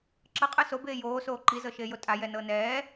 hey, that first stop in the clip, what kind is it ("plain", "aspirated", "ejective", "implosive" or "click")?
click